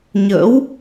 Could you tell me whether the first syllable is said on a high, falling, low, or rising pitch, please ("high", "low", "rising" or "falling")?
rising